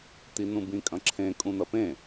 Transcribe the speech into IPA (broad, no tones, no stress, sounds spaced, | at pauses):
t̪ i n ũ b ĩ kʼ ɐ̃ ǁʰ ẽ kʼ ũ n̪ ɐ p ẽ